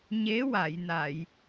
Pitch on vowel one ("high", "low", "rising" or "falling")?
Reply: rising